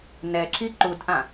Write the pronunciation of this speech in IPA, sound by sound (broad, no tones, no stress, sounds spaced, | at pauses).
n ɛ ǁ i ǃ u d ʔ ã